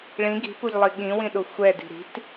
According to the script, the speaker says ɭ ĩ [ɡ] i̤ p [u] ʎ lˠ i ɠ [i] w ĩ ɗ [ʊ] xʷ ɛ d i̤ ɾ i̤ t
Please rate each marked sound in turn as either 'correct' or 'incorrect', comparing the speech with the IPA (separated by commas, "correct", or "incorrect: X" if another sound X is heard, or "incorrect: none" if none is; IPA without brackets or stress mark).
correct, correct, incorrect: ĩ, correct